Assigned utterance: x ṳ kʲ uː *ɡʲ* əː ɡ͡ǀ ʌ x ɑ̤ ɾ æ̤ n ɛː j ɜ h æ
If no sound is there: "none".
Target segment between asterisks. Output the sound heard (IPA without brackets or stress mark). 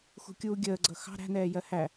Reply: ɡʲ